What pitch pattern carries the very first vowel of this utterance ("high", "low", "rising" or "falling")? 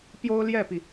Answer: high